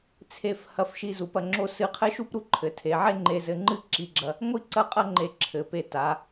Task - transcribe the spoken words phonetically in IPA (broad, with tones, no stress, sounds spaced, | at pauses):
t͡sʰ e˧˩ f h ɐ˧˩ f ʃ i˧˩ z u˩˧ p ɐ˩˧ ŋ͡ǁ o˥˧ s ɨ˧˩ qʰ ɘ˥˧ ʃ u˥ p ɾ u˧ ǃʰ ɘ˩˧ tʰ e˩˧ ʕ e˥˧ ŋ͡ǃ e˥˧ z ɘ˥ ŋ͡ǃ ɨ˥ ǁ i˧ ɡ͡ǁ ɐ˧ | ŋʷ i˥˧ ǀ ɐ˥ qʼ ɐ˥ ŋ͡ǃ e˧˩ ǁʰ ɘ˩˧ p e˧˩ t a˩˧